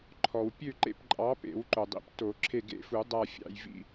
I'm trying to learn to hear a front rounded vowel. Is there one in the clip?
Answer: yes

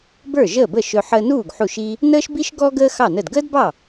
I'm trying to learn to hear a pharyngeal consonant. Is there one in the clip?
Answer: yes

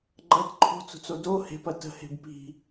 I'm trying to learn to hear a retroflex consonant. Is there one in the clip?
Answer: no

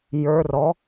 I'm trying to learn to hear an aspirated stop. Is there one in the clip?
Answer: no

